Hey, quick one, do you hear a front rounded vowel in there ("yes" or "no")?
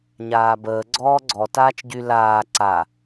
yes